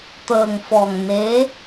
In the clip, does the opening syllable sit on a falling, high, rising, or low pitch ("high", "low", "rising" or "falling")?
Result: low